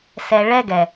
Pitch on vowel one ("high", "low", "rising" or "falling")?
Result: low